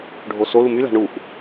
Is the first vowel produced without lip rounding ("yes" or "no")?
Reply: no